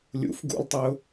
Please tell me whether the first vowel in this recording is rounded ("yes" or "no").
yes